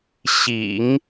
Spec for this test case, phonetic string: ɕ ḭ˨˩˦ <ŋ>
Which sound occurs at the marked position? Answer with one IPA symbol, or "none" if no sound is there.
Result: ŋ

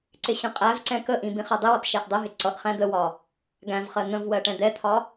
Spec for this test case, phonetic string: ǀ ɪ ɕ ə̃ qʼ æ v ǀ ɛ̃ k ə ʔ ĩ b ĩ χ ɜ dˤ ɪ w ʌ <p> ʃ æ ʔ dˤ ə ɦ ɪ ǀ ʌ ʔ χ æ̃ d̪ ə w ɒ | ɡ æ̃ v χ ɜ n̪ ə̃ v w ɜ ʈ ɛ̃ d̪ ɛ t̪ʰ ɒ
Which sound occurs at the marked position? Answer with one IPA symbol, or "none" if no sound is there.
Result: p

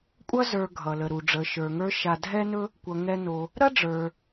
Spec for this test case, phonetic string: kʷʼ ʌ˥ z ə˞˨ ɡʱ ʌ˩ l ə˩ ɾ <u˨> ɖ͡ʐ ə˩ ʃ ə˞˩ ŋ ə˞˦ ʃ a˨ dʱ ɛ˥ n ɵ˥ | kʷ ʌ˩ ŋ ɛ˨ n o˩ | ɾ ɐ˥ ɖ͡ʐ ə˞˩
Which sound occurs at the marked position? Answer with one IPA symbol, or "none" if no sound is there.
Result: u˩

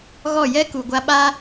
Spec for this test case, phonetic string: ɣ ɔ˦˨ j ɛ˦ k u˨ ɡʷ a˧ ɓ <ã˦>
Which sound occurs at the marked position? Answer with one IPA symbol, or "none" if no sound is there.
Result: a˦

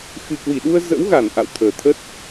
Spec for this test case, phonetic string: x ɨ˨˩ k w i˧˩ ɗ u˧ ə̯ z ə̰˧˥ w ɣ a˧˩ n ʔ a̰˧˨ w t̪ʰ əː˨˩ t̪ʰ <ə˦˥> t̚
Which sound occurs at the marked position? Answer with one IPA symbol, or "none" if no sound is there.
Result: ə˦˥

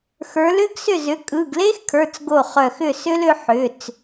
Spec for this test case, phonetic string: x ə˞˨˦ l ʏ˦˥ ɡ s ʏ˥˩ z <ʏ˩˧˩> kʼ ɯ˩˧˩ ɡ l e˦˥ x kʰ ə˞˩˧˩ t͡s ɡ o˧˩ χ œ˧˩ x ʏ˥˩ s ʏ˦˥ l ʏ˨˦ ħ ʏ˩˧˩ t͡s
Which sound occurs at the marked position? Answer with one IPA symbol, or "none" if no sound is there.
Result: ʏ˨˦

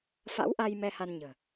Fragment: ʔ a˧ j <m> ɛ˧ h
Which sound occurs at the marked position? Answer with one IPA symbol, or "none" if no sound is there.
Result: m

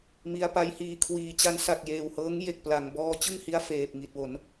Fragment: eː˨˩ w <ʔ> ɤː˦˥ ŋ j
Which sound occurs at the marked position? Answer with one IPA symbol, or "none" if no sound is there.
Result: h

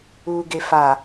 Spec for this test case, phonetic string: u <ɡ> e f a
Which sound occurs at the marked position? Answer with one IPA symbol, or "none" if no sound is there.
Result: ɡ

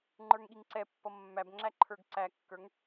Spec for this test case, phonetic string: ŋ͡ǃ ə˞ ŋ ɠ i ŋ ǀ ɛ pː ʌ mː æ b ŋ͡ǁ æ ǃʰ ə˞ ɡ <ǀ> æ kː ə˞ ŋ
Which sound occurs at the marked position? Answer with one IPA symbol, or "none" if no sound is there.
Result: ǀ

